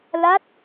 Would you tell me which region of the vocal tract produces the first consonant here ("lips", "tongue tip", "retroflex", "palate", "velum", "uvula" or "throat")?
tongue tip